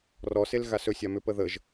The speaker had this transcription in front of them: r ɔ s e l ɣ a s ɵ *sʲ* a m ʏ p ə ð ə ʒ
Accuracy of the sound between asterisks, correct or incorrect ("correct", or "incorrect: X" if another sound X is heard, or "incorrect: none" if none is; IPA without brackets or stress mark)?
correct